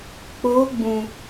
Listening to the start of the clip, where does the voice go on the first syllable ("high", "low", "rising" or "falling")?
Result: rising